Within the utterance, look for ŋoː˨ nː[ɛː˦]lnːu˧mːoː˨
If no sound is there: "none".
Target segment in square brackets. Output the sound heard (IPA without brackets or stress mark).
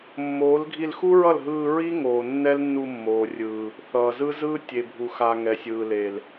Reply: ɛ˦